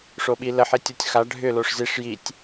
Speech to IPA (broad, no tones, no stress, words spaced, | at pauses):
ʂoɓilə ħitʲotʲxa ɖʱʏ loʂziʂ jitʲ